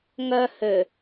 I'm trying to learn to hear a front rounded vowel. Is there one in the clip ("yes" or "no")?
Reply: yes